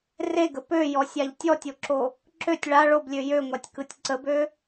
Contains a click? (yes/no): yes